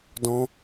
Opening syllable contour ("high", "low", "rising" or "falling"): high